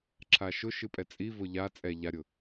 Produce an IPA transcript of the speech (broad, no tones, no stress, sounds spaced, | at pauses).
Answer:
ǁʰ a ʃ ʊ ʃ ɨ pʼ ɛ t͡sʼ i v ʊ ʎ a t͡sʼ ɛ ʎ a ɾʲ ʊ